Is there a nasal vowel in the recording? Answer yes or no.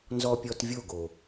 no